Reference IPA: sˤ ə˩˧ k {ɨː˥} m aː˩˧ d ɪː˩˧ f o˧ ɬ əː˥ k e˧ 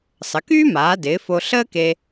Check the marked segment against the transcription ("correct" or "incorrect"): incorrect